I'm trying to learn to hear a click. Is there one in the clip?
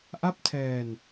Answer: no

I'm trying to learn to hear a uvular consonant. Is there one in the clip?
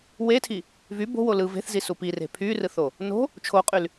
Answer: yes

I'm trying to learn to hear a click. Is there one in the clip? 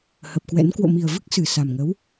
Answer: no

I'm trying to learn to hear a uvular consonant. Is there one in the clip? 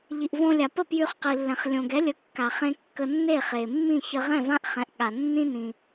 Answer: yes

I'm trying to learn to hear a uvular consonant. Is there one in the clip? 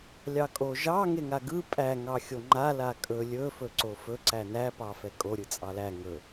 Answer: no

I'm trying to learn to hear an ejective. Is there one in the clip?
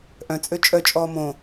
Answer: yes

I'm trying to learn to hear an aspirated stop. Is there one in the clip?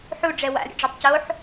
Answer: no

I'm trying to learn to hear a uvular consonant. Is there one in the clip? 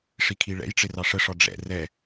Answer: no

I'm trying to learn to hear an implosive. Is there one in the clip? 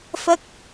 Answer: no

